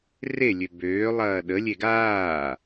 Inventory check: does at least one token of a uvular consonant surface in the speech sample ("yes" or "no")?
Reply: no